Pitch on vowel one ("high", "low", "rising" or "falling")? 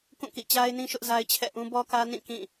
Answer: falling